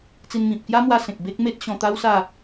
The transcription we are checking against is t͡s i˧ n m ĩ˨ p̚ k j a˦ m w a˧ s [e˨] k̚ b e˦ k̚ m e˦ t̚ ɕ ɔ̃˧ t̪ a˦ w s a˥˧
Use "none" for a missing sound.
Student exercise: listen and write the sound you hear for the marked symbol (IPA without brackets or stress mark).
ẽ˨